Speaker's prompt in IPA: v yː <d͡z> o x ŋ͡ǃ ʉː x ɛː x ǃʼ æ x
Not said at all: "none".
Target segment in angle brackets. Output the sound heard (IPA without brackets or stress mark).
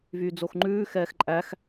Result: d͡z